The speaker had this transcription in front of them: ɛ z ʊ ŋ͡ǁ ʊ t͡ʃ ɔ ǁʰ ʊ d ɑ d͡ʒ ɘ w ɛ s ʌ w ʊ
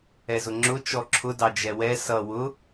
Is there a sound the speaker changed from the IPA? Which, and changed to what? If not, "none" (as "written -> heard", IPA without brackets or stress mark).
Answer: ɘ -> ɛ